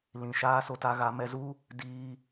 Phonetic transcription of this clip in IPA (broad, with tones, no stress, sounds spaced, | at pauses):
l ĩ˨ ʃ aː˦ s o˧ t a˧ ɣ a˧ m ɛ˧ z u˦ | d iː˧